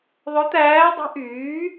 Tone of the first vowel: rising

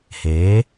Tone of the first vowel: rising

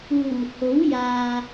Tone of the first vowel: low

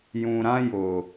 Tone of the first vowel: low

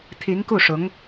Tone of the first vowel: rising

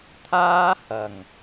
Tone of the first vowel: high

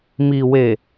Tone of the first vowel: low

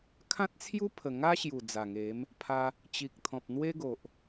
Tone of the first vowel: high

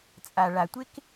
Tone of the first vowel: low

